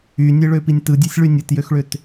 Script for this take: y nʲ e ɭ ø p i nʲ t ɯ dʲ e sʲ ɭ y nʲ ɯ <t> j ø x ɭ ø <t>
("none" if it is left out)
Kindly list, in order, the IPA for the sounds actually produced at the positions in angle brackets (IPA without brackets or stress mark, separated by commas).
t, t